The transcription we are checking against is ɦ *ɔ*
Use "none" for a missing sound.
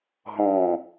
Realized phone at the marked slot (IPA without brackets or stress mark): ɔ̃